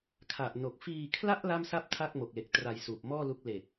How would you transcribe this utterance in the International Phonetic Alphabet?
kʰ a˨˩ ʔ n o˨˩ k̚ f iː˧ kʰ l a˥˩ ʔ l a˥˩ m s a˥˩ p̚ tʰ a˥˩ k̚ m o˨˩ k̚ l e˨˩ k̚ t r a˧ j s uː˨˩ p̚ m ɔː˥˩ l u˦˥ k̚ l e˨˩ k̚

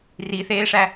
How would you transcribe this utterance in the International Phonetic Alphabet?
r i θ eː ʂ æ

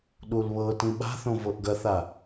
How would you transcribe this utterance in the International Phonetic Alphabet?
ɗ u l β ɤ t ĩ ɓ a̤ θ õ v ɤ ʔ ɡ ɐ θ a

